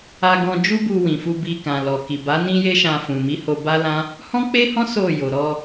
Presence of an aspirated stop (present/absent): absent